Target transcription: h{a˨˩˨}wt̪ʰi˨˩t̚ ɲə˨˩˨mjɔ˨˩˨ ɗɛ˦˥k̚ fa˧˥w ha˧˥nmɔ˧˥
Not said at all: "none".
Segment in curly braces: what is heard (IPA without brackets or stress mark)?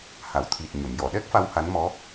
a˨˩˨